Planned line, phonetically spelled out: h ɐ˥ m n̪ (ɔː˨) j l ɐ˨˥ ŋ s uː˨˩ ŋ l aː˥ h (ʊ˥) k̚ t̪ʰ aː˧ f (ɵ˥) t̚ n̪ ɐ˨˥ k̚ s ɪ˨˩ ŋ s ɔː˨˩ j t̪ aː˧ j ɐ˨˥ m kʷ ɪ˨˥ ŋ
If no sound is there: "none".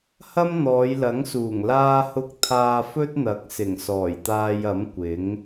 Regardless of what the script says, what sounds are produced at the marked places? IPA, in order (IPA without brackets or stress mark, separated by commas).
ɔː˨˧, ʊ˥, ɵ˥